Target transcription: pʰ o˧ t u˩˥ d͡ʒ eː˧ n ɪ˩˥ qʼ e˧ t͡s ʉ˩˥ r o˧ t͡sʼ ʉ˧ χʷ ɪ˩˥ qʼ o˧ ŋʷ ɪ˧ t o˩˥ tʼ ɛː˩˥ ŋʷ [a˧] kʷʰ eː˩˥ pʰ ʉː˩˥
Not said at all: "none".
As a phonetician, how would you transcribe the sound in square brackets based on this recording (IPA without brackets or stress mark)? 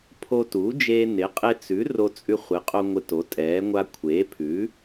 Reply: a˧